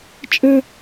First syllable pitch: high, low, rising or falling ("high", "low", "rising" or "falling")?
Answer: high